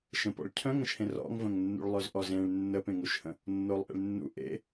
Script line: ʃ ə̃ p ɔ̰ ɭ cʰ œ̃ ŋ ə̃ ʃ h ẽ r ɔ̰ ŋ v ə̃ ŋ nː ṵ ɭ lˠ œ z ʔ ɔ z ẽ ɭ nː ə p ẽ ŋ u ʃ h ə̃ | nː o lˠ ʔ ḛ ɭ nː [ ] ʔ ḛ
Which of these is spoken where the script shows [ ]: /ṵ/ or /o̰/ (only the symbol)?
ṵ